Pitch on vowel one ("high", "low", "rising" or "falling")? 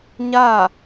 falling